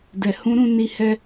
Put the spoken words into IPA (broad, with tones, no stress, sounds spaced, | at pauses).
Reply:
d ɛ˨ h ũ˨˦ ɾ ũ˦˨ n i˧ h ɛ˧